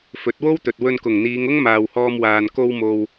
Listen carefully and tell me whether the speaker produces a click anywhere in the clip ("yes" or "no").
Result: no